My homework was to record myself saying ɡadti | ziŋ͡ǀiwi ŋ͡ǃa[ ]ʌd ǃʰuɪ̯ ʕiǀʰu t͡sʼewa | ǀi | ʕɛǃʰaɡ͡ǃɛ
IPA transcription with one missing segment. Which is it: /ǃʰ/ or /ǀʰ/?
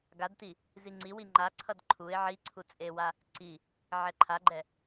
ǀʰ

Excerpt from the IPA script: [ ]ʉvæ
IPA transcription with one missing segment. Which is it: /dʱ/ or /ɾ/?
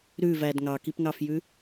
ɾ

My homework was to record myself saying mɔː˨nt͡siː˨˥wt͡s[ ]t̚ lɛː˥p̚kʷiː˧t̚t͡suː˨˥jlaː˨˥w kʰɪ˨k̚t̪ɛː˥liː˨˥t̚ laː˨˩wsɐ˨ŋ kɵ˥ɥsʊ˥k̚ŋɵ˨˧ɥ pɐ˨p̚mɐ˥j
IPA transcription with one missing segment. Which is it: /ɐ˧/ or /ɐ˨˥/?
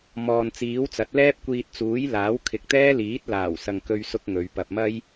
ɐ˨˥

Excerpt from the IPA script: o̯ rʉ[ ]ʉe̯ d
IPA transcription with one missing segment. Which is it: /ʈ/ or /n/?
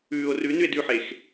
n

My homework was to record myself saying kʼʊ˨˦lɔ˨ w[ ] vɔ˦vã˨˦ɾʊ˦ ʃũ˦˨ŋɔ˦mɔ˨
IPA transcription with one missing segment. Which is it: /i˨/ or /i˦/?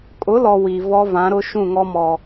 i˨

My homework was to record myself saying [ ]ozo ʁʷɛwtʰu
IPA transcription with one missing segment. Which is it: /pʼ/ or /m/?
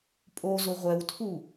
pʼ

